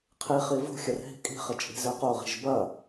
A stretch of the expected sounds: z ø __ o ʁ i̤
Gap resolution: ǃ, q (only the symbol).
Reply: q